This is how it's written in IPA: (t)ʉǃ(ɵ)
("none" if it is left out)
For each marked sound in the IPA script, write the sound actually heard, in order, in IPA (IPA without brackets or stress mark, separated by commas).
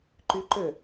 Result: ǃ, ɵ